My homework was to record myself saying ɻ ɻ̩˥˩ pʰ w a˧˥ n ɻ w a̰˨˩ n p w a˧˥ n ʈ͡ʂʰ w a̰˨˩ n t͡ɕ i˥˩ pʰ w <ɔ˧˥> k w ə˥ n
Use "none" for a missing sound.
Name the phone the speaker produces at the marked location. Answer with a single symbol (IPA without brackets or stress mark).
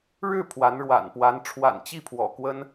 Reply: ɔ̰˨˩